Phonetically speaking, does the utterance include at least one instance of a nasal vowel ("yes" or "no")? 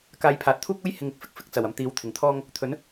no